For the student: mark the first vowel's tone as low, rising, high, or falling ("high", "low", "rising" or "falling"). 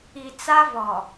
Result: low